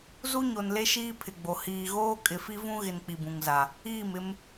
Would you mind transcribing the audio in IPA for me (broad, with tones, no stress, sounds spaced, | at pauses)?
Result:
z u˦ ɲ o˨ n l e˦ ʃ iː˦ pʰ ɪ˨ ɡ͡b o˨ h iː˨ ɣ oː˦ kʼ ɪ˨ f i˦ v ũ˦ ɣ ɪ˨ n k͡p i˨ b ũ˨ ŋ z a˨ | iː˦˨ m ɪ˦ m